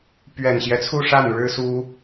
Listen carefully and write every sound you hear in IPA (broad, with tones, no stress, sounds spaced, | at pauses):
p ɥ ɛ˨˩ n ɕ j ɛ˦ t͡sʰ u˥˧ ʂ a˥˩ n ɻ ɻ̩˥ s u˥